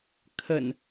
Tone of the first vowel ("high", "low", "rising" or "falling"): low